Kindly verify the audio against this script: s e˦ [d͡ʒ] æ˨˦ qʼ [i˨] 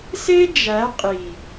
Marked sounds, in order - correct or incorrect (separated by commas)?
correct, correct